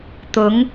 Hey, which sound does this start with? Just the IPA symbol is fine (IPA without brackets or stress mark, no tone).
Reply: t̪